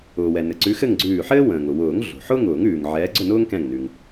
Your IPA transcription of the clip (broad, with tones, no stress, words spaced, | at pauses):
ʊː˩wɛ˩ nɘ˩ǀʉ˨˥xɘ˥˨ŋɡ͡ǀʉː˧˩ ħɘː˥ wə̃ː˩ŋʊ˩wʊː˨˩˦ŋ ɮo̤˩ħʊː˥ŋʊː˨˩˦ŋ ʉː˩ŋʕɛː˨˥ ɡ͡ǀʊ˥˨nʊː˥ŋkɛ̃˧˩ŋnʉ˩ŋ